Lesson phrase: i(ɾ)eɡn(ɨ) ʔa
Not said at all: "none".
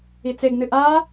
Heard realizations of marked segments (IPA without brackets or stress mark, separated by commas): t͡s, ɨ